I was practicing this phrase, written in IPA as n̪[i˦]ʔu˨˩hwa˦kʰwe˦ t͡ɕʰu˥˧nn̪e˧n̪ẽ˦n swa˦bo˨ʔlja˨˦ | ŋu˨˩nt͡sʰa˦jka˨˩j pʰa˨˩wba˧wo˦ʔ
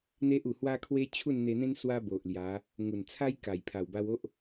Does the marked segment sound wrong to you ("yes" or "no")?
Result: yes